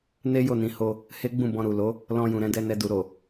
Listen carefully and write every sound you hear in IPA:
n e˦ j o˦˨ n ĩ˨˦ h o˧ | h e˦ ɡ͡b ũ˦˨ b ɔ̃˧ ɾ u˨ l o˨˦ | l ɔ̃˧ j ũ˨ ɾ ɛ̃˨˦ d ɛ˧ n ɛ˧ d u˨ ɾ o˨

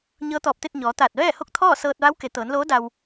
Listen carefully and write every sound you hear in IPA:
ɲ ɤː˧˥ t̪ ɔː˧˩ p̚ t̪ e˥˨ t̚ ɲ ɔː˩˧ t̪ aː˧˩ t̚ ʋ ɛː˥˨ h o˥˨ k̚ t̪ʰ ɔː˥˨ s ɤː˧ t̚ ʋ a˧˥ w k e˩˧ t̪ ɤː˩˧ n l oː˧˥ d a˧ w

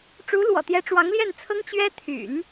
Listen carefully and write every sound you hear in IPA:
ʈ͡ʂ u˧˥ l w ɔ̰˨˩ t̪ j ɛ˧˥ ʈ͡ʂ w ɑ˧˥ ŋ l j ɛ˥˩ n t͡sʰ ɤ˥ ŋ t͡ɕ ɥ ɛ˥ t̪ʰ y̰˨˩˦ n

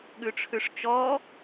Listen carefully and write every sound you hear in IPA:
ɠ ʉ ʈ͡ʂʰ ʉ ʂ t͡ʃ ɔ

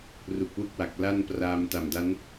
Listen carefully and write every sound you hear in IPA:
r u˨˩ k̚ w u˥˩ k̚ w a˨˩ k̚ l a˥˩ n p r aː˧ m t a˨˩ m d a˦˥ n

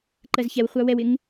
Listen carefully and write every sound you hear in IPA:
ǃ ɜ z ç ɛ w χʷ ɑ w ɛ w ɪ ŋ

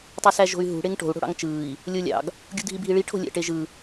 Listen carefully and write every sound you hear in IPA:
tˤ y s æ ʒ o̤ y̯ ɦ ṳ ɽ e ŋ ʈ o̤ u̯ ɽ o̤ ɽ ɑ̰ ŋ t͡ʃ ɯː i̯ | lʲ o lʲ ɑ̰ ɡ | ɡʲ ṳ dʱ i bʱ i ɭ i ʈʰ o̤ lʲ æ̰ ʈ e ʒ ɯ

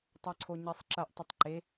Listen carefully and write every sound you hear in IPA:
tˤ a ǀʰ o ɲ e sˤ ǁ ɐ ʔ tˤ ə tˤ ǃ e

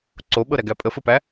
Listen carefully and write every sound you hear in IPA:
ǀ o ɓ ɤ ɾ æ ɡ æ pʼ ə f ɘ p æ

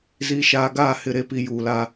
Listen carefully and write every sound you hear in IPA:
z iː˨ ʃ aː˨ ɡ aː˦˨ h ɪ˦˨ ɾ e˦ p i˨ j uː˨ l a˦

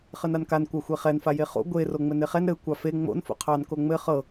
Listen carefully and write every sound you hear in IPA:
χ ɘ n a n k a n kʷ a xʷ e χ ɛ n f a j e χ o̰ ɡʷ e r o ŋ͡m ɘ n e χ ɛ n ɾ ɘ kʷ ɑ f e ŋ͡m o̰ n f o̰ qʰ ɑ n k o ŋ͡m ɘ χ ɤ

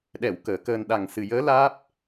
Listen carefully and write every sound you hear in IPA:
ɗ ɛ˨˩˨ w k əː˨˩˦ k əː˧ n ɗ a˨˩ ŋ s ɨ˨˩ j əː˧˥ l aː˦˥ p̚

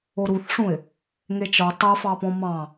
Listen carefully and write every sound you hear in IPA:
o ɾ u θ ʂ ũ ɪ̯ | ŋ e t͡ʃ ɔ tˤ a f ɑ p ɔ̃ m ɑ̃

